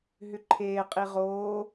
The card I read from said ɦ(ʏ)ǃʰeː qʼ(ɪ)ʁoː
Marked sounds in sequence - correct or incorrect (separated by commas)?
correct, incorrect